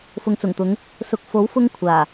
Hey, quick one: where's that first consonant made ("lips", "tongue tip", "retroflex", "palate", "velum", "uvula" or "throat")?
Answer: lips